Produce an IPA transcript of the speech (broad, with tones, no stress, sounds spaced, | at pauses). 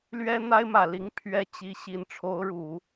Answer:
l ɥ ɛ˥ n̪ a˥ ɪ̯ m ä˨˩ l i˧˥ ŋ pʰ ɥ ɛ˥ t͡ɕ i˧˥ ɕ i˧˥ n ʈ͡ʂʰ o˧˥ ʊ̯ ɻ u˨˩˦